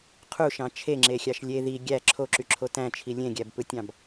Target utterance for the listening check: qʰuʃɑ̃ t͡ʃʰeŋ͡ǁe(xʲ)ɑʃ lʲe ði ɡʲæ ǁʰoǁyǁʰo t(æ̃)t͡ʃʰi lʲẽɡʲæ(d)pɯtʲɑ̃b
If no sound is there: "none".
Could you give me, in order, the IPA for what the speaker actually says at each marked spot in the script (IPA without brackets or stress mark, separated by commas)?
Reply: xʲ, æ̃, b